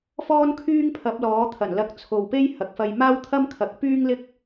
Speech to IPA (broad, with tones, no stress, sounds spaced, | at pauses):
f ɔː˥ n kʰ yː˥ ŋ pʰ ɐ˨˥ p̚ l ɔː˨˥ t̪ʰ ɐ˨˩ n l ɐ˧ k̚ t͡sʰ o˨ w p e˥ j h ɐ˨ k̚ f ɐ˧ j m aː˥ w t̪ʰ ɐ˥ m kʰ ɐ˨˥ k̚ p yː˥ ŋ l ɪ˥ k̚